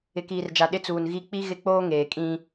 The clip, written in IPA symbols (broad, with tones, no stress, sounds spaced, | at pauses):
ɪ˨ k iː˨ r d͡ʒ a˨ ɗ ɪ˦ t͡s uː˨ n ɣ i˦˨ k͡p i˦ ɣ ɪ˦ k͡p oː˦ ŋ eː˨ kʼ ĩ˦